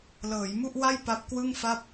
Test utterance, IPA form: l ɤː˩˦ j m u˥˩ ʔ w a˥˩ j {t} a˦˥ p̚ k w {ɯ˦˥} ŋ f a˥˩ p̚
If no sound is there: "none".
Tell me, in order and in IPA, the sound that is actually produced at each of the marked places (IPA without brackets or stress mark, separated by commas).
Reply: p, ɯ˥˩